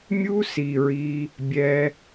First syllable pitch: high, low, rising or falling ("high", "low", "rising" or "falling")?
high